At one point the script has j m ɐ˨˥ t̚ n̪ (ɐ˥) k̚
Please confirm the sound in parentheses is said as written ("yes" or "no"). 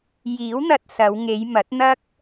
yes